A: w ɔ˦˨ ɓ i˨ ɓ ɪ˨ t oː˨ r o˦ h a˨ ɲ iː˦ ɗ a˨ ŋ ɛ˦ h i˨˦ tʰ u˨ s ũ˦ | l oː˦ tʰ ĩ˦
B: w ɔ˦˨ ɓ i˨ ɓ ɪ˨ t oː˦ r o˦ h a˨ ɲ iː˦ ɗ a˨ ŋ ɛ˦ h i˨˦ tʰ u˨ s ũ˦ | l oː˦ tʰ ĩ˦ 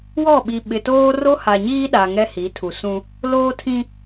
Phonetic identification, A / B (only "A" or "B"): B